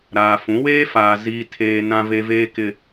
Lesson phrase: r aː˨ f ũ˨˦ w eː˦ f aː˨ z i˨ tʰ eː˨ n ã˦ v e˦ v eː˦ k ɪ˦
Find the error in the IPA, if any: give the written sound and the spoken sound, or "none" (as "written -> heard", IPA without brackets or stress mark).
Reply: r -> ɾ